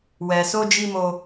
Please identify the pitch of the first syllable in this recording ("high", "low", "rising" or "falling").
low